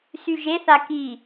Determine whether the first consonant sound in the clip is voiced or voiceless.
voiceless